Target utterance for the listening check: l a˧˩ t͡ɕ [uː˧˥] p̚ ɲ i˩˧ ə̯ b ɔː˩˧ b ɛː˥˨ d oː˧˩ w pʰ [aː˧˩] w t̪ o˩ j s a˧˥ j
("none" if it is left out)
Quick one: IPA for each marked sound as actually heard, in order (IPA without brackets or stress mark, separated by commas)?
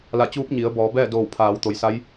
uː˧˥, aː˩˧